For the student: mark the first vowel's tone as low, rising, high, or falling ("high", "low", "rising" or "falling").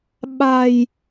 low